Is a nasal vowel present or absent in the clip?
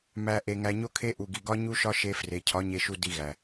absent